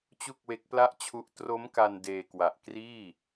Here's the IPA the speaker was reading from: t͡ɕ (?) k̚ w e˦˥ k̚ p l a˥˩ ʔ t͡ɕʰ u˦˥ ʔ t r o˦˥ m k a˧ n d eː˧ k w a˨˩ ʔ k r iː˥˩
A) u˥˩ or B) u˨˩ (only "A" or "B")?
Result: A